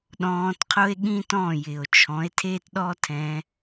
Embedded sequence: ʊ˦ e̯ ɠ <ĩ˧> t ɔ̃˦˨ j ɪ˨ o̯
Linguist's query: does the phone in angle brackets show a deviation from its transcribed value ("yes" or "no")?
yes